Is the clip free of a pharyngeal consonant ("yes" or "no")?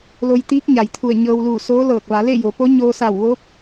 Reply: yes